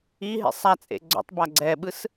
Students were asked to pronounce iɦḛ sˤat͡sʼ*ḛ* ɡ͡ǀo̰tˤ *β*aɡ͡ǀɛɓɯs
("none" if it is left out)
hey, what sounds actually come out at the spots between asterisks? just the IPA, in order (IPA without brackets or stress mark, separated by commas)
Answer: ḛ, b